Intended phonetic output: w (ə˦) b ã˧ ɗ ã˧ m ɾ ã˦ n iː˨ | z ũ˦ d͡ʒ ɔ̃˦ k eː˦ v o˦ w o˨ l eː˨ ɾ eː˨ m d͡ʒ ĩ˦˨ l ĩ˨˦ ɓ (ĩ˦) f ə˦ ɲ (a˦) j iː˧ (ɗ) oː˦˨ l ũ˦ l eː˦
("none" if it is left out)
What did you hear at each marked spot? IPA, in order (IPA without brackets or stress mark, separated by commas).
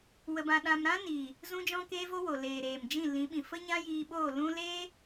ə˧, ĩ˨, ã˦, ɓ